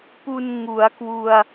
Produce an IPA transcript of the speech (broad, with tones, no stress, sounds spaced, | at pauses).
p u˧ n ŋ u˩˦ a̯ k w u˧ a̯